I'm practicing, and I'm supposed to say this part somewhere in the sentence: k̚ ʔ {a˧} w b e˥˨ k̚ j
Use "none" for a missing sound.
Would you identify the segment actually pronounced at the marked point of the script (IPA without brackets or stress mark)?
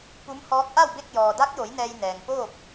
a˥˨